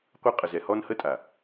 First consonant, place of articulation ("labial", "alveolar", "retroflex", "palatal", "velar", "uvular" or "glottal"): uvular